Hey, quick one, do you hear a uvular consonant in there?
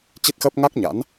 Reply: no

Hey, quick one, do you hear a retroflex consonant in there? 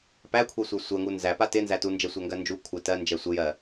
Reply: no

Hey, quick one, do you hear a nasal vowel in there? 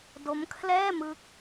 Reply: no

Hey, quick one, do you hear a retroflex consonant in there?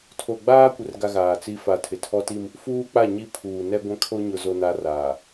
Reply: no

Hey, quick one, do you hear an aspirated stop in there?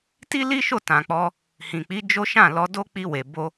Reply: no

